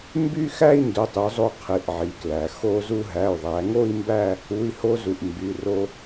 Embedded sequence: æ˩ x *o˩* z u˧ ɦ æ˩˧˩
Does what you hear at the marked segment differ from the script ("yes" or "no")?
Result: yes